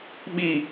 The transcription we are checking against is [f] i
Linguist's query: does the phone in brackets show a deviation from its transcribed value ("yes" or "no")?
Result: yes